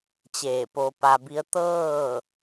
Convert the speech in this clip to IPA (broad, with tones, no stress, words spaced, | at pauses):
t͡ɕeː˧˩po˧pa˧bi˧˥ə̯ t̪ɤː˥˨